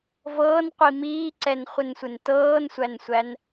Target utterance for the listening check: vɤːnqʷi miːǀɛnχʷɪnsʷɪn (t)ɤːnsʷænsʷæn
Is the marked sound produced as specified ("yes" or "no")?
yes